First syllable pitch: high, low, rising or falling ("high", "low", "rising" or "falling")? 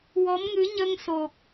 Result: rising